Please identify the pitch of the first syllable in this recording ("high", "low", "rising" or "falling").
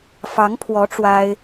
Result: rising